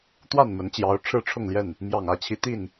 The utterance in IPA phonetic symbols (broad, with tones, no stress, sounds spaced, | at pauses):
t̪ w a˥˨ n m ə˨˦ n t͡ɕ j ɑ˨˦ ʊ̯ ʈ͡ʂʰ ɻ̩˥˨ ʈ͡ʂʰ ʊ˥˨ ŋ l j ɛ˥˨ n | m j ɑ˨˩ ŋ ä˥˨ t͡ɕʰ i˨˦ t̪ i˥˨ n